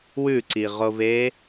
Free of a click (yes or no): no